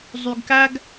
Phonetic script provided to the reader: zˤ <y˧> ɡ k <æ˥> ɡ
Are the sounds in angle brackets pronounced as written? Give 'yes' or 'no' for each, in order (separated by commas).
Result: yes, yes